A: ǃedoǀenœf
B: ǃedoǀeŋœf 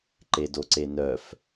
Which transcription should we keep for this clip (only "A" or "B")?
A